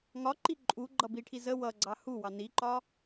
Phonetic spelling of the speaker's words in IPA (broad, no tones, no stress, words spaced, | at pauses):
ŋɒǃi ǃʼuɡ͡ǃʌ biʈʰi zə wʌɡ͡ǀɑ huwɑ niǃɒ